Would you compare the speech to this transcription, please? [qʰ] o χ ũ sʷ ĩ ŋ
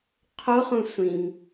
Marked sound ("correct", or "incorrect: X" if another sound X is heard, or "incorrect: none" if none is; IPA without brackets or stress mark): correct